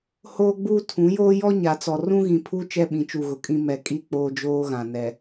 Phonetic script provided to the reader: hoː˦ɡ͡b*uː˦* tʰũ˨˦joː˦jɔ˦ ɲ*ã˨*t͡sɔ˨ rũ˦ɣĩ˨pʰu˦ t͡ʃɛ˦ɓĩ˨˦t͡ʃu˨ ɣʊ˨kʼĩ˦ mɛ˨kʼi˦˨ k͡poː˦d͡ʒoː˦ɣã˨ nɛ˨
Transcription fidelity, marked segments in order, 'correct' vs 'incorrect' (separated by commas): correct, incorrect